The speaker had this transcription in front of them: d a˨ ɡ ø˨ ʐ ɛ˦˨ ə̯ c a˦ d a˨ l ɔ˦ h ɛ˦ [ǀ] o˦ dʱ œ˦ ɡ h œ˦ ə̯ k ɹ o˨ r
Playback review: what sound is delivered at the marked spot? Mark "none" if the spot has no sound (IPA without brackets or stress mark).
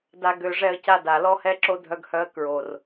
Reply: ǁ